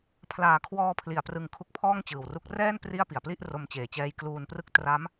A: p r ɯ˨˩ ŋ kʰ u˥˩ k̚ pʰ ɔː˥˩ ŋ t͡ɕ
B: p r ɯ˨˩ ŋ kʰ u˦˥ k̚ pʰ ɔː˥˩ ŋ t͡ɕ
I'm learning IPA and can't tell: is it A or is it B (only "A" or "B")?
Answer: B